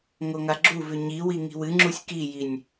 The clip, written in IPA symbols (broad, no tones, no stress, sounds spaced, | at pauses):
ŋ o ŋ a ɡ͡ǁ u v ʉ ɲ i w i ŋ i̤ w ɨ ŋ͡ǁ u sʲ k i j i nʲ